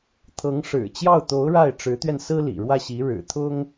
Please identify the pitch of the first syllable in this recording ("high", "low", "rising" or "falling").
rising